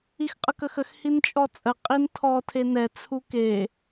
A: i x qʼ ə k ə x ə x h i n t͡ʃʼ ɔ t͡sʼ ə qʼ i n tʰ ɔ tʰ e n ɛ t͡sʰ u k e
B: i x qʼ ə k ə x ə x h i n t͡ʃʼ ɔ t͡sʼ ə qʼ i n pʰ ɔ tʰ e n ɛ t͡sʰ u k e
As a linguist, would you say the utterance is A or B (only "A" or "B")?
A